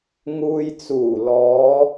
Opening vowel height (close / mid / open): close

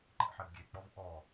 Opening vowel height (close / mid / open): mid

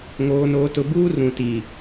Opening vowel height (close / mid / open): mid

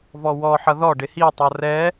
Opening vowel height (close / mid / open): mid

